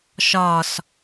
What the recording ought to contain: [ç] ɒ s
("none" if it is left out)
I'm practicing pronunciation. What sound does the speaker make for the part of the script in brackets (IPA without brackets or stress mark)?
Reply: ʃ